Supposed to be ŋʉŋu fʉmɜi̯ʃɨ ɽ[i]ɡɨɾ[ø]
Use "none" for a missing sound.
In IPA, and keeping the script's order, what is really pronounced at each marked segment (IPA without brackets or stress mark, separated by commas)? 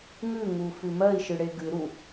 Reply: e, u